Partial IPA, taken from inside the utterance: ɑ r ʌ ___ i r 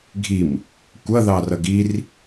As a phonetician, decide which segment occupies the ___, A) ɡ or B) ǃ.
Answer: A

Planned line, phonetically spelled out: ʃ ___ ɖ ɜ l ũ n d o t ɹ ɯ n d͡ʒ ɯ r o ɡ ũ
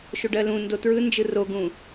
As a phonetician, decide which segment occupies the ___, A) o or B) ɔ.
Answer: A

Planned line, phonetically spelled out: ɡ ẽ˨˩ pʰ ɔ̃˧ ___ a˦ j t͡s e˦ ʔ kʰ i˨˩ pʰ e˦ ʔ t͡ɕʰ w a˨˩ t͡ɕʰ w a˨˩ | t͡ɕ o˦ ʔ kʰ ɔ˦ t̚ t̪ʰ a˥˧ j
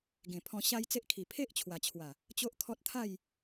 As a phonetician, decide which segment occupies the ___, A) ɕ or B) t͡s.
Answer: A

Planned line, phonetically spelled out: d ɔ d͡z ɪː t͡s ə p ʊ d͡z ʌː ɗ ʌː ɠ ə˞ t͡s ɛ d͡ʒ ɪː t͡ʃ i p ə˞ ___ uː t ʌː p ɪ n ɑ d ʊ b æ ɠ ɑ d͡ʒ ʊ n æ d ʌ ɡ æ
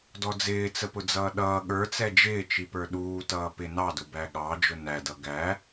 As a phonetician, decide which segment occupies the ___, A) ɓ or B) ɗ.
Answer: B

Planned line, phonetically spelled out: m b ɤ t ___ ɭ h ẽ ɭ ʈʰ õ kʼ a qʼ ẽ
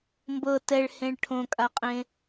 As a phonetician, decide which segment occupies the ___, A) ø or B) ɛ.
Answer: B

